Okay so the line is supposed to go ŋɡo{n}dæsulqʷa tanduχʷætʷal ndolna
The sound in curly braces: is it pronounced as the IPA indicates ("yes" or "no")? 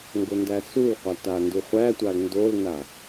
yes